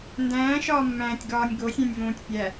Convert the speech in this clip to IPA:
ndæ̃ːʃɒːmːæ̃ːtʲɡɒːnʲ ɡosʲẽnʲvõːtʲ pʲæ

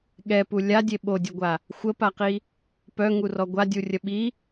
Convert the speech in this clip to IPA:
ɠɛpu lʲadʲe ɓodʲɛɡʷa | xʷəpaqi | pœŋurɔ ɡʷadʲurʲə ɓi

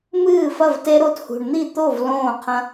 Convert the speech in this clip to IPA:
mɨː˥˨fɐ˥˨vte˦ ɾo˦thṳ˨ɳn̪i˥˨ t̪o˥˨v lõː˥˨qʰɐ̃˦

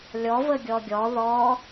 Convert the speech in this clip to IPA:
lʲɔvə ɡʲɔɡʲɔ ðɔ

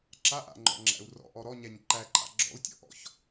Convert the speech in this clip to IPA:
ǁaʔa̰ŋ͡ǃɔ̰ŋ͡ǁæ̰u̯ rɔ̰ʔɔ ɾɔɲæɲ ǃæǃʼa̰ ɡ͡ǁɔ̰u̯ tʲɔ̰ʔɔ̰ç

